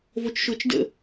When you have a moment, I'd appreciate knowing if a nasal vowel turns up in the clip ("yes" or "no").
no